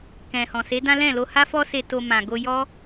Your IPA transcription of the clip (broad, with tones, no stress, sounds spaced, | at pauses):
k ɛ̃˨ h ɔ̃˨ s e˨˦ d ã˦ l ɛ̃˦˨ l o˧ h a˦ f ɔ˦ s e˧ t o˧ m ã˨ ɡ o˧ j ɔ˦